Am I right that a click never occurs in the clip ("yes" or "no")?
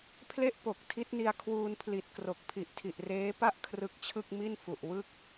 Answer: yes